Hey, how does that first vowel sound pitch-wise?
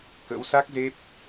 rising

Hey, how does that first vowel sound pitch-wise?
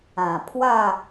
low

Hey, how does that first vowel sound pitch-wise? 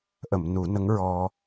low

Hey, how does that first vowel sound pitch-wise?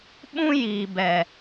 high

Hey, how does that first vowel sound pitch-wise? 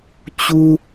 high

